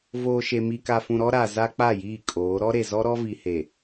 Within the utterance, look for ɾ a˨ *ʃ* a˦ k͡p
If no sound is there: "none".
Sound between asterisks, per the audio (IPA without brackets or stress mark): z